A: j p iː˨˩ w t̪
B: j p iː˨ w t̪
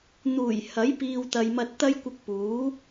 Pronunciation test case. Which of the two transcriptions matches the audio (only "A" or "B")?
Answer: B